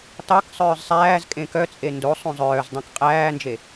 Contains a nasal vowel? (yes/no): yes